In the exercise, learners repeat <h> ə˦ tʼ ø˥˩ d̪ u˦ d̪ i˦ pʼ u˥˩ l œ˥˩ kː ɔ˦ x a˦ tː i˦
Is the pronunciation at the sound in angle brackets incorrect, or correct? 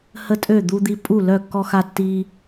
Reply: correct